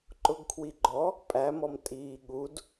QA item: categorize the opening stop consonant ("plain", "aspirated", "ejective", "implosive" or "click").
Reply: click